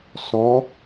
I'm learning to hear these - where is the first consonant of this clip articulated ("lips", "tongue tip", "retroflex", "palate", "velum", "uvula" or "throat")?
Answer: tongue tip